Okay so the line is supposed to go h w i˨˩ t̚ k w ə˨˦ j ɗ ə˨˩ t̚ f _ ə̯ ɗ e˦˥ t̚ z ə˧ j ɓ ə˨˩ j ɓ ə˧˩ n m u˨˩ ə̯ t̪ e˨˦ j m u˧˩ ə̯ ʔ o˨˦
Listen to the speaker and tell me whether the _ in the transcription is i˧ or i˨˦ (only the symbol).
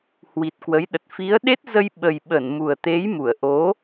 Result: i˨˦